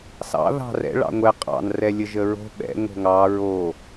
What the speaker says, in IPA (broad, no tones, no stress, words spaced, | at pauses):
sɑ̰ ðɑ̤rɛ̰ ɭɑ̰ŋʷɛ qʼɑ̰n rɛlʲəʒəɹo̤ ɓɛ̰ ŋo̤ŋɑ ɹo